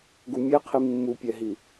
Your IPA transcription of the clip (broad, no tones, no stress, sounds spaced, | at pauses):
ɡ u mʲ ɛ qʰ i mː u pʲ ɛ ɦ i